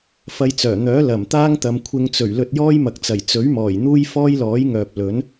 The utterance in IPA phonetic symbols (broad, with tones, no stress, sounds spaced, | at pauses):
f ɐ˧ j t͡s œː˨˩ n̪ œː˨˥ l ɐ˨˩ m t̪ aː˥ ŋ t̪ ɐ˨ m kʷʰ ɪ˧ ŋ t͡s ɵ˨˩ ɥ l ɵ˧ t̚ j ɔː˥ j m ɐ˨ k̚ t͡s ɐ˨˩ j t͡s ɵ˨˥ ɥ m ɔː˨˩ j n̪ uː˥ j f ɔː˥ j l ɔː˨˥ j ŋ œː˨ p̚ l ɵ˨˥ n